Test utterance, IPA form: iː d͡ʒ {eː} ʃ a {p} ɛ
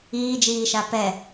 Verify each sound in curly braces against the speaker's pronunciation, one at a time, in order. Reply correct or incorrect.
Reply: incorrect: iː, correct

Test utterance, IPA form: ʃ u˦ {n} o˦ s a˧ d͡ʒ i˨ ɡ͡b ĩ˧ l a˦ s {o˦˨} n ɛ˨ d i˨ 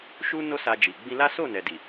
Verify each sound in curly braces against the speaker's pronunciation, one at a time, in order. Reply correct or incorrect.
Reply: correct, correct

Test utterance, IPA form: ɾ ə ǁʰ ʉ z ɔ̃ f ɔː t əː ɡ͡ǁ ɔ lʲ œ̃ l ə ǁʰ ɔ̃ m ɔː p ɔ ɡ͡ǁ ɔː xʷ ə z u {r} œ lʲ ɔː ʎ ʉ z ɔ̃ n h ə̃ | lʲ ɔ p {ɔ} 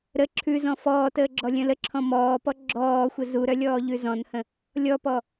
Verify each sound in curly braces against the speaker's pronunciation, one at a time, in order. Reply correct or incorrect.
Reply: incorrect: ɾ, correct

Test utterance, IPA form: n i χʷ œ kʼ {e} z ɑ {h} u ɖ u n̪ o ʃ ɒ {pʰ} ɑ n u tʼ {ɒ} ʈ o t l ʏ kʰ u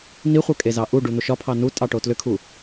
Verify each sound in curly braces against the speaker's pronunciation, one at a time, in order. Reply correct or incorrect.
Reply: correct, incorrect: ʔ, correct, incorrect: ɑ

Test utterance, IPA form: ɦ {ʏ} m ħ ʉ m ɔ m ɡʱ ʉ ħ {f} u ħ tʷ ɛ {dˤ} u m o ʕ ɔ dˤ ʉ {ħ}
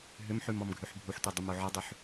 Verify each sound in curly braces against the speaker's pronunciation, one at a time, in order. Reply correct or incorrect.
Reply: correct, incorrect: bʱ, correct, correct

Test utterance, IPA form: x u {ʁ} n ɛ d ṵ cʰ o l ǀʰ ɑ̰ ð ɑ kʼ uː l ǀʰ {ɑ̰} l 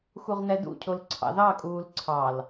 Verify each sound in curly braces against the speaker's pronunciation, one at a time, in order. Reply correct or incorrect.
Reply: correct, incorrect: ɑ

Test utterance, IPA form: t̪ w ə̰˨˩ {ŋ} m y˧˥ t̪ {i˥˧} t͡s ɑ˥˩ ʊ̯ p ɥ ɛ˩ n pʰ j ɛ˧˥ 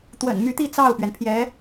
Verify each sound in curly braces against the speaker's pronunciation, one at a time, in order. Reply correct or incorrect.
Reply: incorrect: n, correct

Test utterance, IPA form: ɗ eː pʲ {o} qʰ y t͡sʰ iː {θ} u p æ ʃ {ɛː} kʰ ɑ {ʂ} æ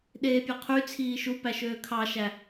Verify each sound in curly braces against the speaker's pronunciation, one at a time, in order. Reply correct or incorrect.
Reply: correct, incorrect: ʃ, incorrect: øː, incorrect: ʃ

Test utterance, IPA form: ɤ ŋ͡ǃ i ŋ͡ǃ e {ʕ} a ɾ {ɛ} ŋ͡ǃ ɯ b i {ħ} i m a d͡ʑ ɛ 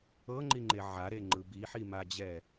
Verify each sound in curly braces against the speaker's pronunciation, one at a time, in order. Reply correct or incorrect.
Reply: correct, incorrect: e, correct

